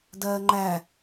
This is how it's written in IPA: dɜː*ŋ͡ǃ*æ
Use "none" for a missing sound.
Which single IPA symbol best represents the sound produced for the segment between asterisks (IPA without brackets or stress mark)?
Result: ŋ͡ǃ